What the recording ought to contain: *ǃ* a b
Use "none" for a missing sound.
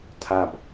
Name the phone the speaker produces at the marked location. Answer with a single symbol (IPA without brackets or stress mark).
tʰ